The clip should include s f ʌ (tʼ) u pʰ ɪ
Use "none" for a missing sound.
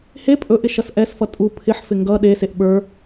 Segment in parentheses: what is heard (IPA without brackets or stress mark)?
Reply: tʼ